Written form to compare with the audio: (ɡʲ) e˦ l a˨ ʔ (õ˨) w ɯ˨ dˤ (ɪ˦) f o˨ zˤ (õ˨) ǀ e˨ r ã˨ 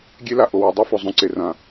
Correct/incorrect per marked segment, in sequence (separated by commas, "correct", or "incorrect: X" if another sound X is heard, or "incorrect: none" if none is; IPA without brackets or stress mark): correct, incorrect: o˨, incorrect: i˦, incorrect: õ˦